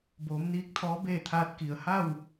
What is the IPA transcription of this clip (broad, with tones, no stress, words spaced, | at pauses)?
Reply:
boː˩˧mniː˧˥k̚ t̪ʰɔː˧˥beː˥˨t̪ʰaː˧t̚ ki˩ə̯ ha˥˨w